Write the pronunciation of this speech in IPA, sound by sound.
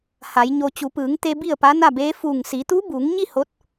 h a˩˧ j ɲ o˧ t͡ɕ u˩˧ p ɯː˩˧ ŋ t̪ e˧ b i˥˨ ə̯ p a˧˥ n a˥˨ b eː˧˥ f uː˧˩ ŋ s i˩˧ t̪ u˧˥ b uː˩˧ ŋ ɲ i˥˨ h o˧˥ t̚

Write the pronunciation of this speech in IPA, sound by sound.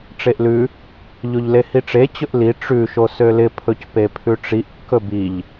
ʈ͡ʂ e ʔ l ʉ | ʎ o ʎ l e h i ʈ͡ʂ e t͡ɕ ɵ ʔ l i ʈ͡ʂ ʉ ʃ o s ø l ɪ pʰ ɵ c p e pʰ ʉ ʈ͡ʂ i ʔ kː ɵ b i ʎ

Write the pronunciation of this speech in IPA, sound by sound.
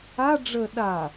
a ɖ͡ʐ ə ɗ a

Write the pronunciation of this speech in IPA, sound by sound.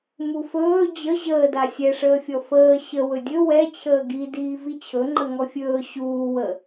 m u f ɵː d͡ʑ ə ʑ əː d a sʲ ɛ ʂ əː fʲ ɔ f əː ɕ ə w ɵ dʲ ɵ w ɛ t͡ɕʰ əː ɡ i d iː v i t͡ɕʰ ɵ ŋ͡ǃ ə ŋ ɔ fʲ ɵː ɕ uː w ə

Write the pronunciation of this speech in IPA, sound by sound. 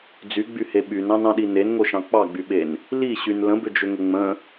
d͡z y ɡ͡b y h e ɓ y n ɑ̃ n ɑ̃ ɗ i n e n ŋ o ʃ ɑ̃ k͡p ɑ ɡ͡b y ɓ e n | l i ɕ y n l ə̃ b ʏ d͡ʒ ʏ ŋ ə ŋ͡m ə̃

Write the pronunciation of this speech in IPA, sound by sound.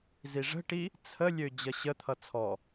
z i ʐ ə̤ ʈ i | t͡sʰ ə lʲ ø d͡ʑ ʌ ɕ ə t̪ʰ ʌ t͡sʰ ɔ

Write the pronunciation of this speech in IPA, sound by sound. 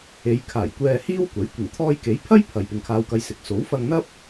e˨˧ j kʰ aː˨˩ j kʷ ɛː˧ h iː˥ w kʷ ɐ˨˥ j kʷ ɪ˨˩ ŋ t̪ʰ ɔː˧ j k e˨˥ j pʰ ɐ˥ j pʰ ɐ˨ j p ɪ˨ ŋ kʰ aː˧ w k ɐ˧ j s ɪ˨˥ k̚ s o˨˥ w f ɐ˧ ŋ n̪ ɐ˥ p̚

